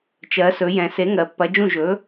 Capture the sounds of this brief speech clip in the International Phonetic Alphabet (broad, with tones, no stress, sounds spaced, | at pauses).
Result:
t͡ʃ ɜ˩˧ s ɵ˩˧ j ɛ̃˩˧ s e˨˥ ŋ ɜ˩˧ pː ɐ˨˥ d͡ʒ ũ˥˨ ʒ ɵ˨˥